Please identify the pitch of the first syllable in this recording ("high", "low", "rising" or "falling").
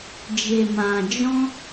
low